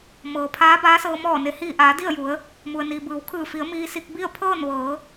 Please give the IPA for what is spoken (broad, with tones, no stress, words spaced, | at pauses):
mɤː˩pʰaː˧˥baː˧˥ sɤː˧ mɔː˧˩ne˩hiː˧˩ʔaː˩˧ di˥˨ə̯ju˩˧ə̯ | mu˩ə̯niː˩bɯː˩˧w kʰɯː˧˩fi˩˧ə̯ miː˧si˧k̚bi˥˨ə̯ pʰɤː˥˨nʋɤː˩˧